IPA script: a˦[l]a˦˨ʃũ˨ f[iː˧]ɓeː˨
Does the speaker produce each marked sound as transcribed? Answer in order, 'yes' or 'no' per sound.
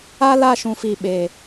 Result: yes, no

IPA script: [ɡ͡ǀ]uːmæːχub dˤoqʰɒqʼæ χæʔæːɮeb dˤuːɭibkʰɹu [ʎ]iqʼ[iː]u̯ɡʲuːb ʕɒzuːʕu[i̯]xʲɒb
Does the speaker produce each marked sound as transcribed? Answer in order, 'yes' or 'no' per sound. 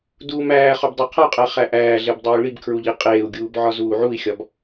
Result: no, yes, no, yes

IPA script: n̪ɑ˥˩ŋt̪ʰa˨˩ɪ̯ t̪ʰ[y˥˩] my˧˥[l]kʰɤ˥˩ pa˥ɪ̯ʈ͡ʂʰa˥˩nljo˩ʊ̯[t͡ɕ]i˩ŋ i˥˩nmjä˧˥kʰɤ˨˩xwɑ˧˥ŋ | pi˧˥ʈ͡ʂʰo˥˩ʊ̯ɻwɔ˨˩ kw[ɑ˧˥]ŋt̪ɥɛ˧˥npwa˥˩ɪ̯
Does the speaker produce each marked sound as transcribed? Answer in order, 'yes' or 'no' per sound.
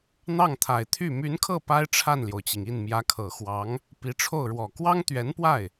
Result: yes, no, yes, no

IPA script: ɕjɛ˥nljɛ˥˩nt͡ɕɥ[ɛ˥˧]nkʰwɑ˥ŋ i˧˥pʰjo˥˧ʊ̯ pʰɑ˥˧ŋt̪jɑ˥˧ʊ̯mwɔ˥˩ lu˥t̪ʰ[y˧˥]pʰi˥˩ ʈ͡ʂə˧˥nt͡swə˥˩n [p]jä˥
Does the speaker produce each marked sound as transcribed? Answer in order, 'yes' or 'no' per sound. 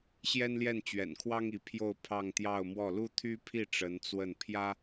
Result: no, no, no

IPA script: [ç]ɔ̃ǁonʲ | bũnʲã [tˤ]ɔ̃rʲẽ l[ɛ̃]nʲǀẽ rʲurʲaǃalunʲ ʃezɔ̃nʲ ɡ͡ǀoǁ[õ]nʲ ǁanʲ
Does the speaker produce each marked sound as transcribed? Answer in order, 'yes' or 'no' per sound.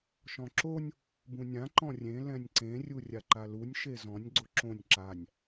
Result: no, no, yes, yes

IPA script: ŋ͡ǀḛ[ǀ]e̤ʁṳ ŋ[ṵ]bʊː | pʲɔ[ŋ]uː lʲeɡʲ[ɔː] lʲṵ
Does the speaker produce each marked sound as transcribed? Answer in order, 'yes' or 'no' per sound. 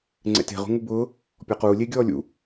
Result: no, no, no, yes

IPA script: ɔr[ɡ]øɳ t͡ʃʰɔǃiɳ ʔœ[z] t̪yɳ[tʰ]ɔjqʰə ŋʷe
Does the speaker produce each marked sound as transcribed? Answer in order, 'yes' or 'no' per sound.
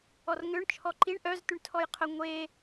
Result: no, yes, yes

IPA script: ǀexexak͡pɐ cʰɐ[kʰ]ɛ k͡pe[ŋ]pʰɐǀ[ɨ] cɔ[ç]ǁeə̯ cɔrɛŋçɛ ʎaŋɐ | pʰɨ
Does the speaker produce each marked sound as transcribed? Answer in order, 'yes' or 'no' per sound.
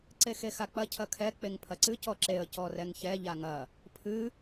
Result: yes, yes, yes, no

